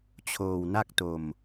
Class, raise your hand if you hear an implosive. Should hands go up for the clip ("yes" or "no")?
no